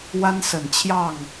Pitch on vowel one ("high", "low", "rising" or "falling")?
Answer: high